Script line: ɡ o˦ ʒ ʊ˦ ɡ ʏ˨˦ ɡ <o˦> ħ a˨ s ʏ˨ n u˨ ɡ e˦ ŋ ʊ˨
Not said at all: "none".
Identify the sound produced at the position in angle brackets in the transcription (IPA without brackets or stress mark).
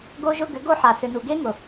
o˦